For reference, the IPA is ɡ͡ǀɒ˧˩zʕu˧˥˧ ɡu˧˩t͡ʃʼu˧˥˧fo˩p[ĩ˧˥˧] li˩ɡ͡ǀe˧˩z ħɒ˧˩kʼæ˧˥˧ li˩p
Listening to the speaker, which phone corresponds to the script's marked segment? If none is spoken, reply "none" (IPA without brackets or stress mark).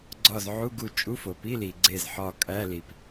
i˧˥˧